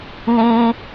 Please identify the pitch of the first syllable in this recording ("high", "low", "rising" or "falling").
high